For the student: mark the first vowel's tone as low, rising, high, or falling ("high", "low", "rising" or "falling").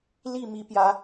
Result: falling